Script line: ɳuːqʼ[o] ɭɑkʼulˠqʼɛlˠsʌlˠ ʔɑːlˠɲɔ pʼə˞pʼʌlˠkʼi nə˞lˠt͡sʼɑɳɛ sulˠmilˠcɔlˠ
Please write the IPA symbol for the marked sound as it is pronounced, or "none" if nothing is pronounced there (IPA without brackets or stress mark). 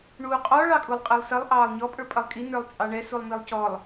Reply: ɔ